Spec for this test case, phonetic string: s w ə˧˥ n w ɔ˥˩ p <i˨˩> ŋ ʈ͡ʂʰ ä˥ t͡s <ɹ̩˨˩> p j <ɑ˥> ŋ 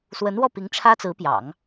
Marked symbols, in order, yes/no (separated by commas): no, no, no